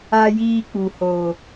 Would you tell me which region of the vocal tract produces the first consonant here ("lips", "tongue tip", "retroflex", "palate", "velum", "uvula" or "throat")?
palate